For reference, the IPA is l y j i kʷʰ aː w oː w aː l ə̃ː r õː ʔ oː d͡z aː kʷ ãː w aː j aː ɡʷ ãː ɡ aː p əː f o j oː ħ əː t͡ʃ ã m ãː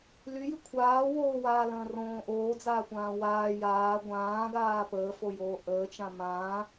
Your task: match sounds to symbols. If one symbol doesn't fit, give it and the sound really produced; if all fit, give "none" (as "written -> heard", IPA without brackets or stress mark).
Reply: ħ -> ʔ